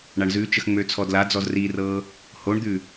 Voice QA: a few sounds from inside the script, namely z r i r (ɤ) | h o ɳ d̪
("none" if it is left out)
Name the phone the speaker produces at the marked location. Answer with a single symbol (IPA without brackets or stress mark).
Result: ɤ